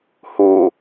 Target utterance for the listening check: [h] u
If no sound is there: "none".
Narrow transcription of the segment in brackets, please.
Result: h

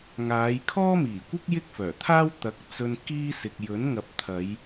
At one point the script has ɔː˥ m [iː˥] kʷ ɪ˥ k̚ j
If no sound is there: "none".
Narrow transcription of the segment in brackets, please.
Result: iː˨˩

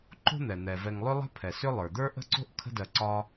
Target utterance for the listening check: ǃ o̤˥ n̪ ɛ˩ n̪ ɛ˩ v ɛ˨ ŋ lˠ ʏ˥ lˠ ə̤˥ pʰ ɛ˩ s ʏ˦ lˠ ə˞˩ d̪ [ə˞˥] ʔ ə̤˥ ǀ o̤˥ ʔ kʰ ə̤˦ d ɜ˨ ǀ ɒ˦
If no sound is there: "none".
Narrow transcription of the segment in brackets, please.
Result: ə˞˥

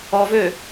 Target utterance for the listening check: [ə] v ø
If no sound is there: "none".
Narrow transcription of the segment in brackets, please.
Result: ɔ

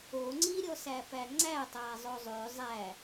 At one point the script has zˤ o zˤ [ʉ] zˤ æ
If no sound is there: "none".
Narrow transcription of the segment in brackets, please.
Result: ʉ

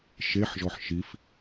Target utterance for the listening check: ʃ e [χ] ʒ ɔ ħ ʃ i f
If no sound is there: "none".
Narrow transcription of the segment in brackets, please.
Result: ħ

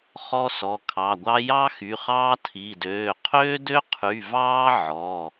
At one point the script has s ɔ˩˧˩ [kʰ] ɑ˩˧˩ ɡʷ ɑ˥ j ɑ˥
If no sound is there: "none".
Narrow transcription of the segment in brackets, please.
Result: kʰ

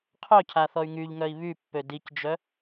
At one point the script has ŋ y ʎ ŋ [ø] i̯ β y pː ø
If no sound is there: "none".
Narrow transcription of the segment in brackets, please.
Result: œ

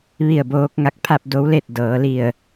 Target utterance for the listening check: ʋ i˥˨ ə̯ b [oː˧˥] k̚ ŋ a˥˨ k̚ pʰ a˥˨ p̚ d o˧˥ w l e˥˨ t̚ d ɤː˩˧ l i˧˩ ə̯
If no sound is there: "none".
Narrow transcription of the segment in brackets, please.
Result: oː˧˥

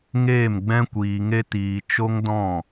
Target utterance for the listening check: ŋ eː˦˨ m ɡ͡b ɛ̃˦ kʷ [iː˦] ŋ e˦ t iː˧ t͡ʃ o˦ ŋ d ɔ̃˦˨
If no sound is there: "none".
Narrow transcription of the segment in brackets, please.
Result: iː˧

